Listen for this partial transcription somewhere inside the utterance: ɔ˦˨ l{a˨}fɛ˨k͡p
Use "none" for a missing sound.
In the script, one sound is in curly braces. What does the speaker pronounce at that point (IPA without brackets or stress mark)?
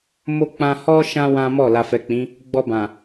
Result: a˨